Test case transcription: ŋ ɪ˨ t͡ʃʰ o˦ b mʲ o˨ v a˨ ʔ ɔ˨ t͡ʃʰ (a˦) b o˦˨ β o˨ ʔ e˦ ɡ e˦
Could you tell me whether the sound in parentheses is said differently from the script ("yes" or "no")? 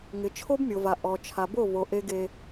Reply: yes